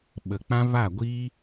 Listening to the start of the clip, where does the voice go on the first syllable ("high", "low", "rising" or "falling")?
low